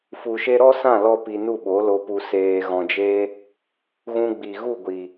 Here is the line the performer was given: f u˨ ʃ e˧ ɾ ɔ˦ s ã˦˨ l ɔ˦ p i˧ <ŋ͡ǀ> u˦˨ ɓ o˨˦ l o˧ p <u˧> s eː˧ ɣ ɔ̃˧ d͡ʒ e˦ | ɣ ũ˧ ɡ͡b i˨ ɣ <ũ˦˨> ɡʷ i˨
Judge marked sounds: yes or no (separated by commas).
no, yes, no